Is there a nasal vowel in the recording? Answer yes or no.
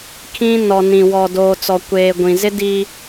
yes